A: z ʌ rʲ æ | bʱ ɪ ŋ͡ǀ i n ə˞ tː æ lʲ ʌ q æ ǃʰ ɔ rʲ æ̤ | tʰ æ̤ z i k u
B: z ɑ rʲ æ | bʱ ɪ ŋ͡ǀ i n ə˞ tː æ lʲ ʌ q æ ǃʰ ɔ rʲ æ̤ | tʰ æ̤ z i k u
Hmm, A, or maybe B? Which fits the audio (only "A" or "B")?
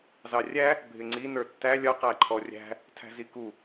B